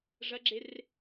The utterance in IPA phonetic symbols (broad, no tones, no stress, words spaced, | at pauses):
ʐɐɡ͡ǁer